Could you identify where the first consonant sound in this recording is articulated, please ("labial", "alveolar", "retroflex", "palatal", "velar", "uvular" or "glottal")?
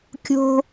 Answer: velar